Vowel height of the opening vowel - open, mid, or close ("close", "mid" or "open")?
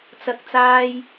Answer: open